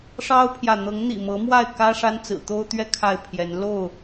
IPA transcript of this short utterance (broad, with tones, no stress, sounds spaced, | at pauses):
ʂ ɑ˦ ʊ̯ pʰ j ä˨ n̪ ɤ˨˦ ŋ n̪ ḭ˨˩ m ɤ˨˦ m w a˥˨ ɪ̯ k ä˦ ʂ a˦ n t͡s ɹ̩˨˩ t̪ o˦ ʊ̯ t̪ ɥ ɛ˦ kʰ a˥˨ ɪ̯ pʰ j ɛ˨˦ n l o˥˨ ʊ̯